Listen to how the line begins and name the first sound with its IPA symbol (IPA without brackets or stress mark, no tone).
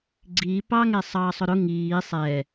ɡ͡ǀ